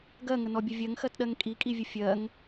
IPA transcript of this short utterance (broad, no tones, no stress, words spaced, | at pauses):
ɡɜŋənɔbʲə vʲɜŋxɜtɗɜŋ kʼikʼivʲə fʲɜŋ